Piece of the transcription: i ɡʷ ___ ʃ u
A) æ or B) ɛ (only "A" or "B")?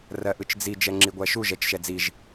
A